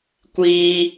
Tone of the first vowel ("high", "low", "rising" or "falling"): high